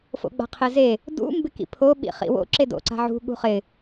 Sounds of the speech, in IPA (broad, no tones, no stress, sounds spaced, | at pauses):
f o̰ ɡ͡b a̤ qʰ ɪ z e | d ṵ m b ɪ k ḭ pʰ o ɓ ḭ χ ḭ w o̰ ǁ e d o̰ ǀ a̤ ʕ ṳ ɠ ṳ χ ɪ